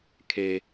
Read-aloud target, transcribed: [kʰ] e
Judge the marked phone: correct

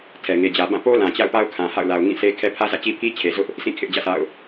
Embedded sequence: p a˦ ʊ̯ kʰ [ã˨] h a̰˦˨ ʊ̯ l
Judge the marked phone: correct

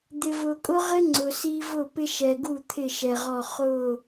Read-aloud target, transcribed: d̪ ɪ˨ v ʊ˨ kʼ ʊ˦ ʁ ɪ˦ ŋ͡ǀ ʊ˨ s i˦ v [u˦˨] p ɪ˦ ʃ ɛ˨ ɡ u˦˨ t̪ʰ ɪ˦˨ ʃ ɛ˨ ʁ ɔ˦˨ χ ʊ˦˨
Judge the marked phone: incorrect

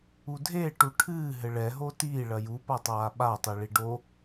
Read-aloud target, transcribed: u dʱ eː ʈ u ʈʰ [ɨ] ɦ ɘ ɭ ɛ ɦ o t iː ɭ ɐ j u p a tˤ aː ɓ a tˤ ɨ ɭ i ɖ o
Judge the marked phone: incorrect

